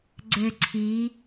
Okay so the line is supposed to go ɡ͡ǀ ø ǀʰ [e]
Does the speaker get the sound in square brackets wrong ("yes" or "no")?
yes